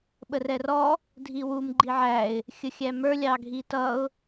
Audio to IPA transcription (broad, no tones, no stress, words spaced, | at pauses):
ɓərɛrɔ | dʱiwum ɡ͡ǃiʕæɪ̯ | xʲəxʲæmə˞ lʲɑɡʱitʌʊ̯